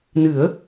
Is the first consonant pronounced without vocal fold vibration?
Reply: no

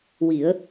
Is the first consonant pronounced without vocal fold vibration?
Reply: no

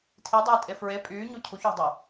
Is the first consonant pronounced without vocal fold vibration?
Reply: yes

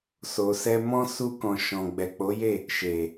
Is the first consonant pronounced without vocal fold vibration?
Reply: yes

